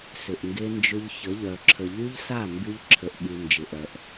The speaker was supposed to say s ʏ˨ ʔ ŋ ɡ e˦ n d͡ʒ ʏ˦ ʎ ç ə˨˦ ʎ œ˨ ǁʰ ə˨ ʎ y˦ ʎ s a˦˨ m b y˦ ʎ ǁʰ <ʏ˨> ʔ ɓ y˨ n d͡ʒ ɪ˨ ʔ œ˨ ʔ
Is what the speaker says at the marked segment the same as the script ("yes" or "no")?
no